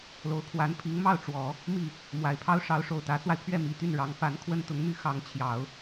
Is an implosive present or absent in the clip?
absent